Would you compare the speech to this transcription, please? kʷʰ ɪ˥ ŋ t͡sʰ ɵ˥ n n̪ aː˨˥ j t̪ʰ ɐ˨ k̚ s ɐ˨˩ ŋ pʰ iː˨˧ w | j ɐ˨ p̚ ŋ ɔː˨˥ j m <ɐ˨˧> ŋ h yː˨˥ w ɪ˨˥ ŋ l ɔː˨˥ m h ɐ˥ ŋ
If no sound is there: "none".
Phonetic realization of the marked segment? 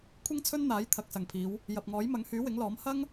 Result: ɐ˨˧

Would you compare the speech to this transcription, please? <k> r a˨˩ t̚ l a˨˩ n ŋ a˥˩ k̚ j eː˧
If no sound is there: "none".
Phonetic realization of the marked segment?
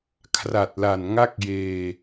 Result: kʰ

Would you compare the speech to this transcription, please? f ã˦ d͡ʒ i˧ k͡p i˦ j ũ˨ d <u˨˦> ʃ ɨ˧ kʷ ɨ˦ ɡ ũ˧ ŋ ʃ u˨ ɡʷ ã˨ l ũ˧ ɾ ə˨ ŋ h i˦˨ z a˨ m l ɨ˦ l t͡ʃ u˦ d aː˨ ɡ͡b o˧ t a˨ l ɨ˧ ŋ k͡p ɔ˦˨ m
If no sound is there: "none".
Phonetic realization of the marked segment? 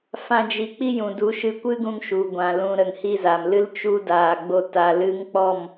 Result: u˨˦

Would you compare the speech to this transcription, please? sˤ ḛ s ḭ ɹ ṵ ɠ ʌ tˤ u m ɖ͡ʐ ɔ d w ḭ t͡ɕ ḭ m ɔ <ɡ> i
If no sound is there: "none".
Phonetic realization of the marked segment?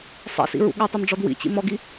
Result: ɡ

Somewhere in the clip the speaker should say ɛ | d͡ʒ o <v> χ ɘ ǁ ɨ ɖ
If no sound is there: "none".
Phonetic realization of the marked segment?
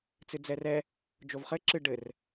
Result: v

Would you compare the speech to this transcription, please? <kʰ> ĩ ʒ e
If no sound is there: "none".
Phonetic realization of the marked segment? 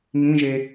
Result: ŋ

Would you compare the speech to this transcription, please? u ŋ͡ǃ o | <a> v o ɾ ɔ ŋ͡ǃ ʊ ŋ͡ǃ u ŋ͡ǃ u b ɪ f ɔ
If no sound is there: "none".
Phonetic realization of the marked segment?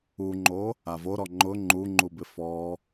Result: a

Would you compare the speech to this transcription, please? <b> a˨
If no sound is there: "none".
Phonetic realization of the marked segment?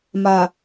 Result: m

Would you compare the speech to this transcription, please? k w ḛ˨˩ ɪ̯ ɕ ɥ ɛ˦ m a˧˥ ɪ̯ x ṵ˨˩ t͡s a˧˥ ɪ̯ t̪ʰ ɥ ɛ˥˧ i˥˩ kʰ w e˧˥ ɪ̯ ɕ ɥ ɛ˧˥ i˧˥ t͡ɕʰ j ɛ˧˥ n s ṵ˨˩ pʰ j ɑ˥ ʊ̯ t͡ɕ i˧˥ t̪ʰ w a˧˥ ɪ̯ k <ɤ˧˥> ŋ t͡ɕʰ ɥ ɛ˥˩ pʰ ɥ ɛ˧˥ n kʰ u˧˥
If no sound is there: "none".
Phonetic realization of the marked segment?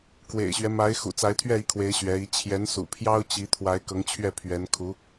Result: ɤ˧˥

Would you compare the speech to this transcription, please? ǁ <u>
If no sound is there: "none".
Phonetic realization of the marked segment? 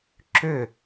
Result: ʏ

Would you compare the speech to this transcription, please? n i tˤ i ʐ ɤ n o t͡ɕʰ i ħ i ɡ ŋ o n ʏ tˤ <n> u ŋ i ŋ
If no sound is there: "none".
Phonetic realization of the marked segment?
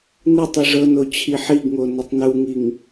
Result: n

